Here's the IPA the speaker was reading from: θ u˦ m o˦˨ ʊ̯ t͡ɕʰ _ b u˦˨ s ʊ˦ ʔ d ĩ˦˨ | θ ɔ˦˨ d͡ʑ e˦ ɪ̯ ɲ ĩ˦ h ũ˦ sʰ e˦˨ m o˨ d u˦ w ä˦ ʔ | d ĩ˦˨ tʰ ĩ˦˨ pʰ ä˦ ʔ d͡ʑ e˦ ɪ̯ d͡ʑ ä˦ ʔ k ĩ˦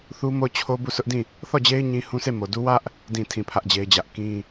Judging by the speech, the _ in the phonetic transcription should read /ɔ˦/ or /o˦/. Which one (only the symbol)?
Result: o˦